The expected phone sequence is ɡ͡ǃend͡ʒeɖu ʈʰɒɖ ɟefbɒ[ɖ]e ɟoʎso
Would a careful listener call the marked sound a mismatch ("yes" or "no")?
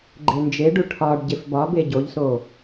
yes